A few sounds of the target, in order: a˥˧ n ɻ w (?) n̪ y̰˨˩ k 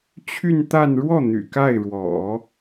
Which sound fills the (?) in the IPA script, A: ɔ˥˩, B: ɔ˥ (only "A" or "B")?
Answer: A